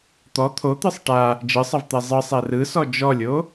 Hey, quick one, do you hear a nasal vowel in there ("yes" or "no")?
no